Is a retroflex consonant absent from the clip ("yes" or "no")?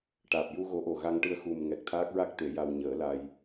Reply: no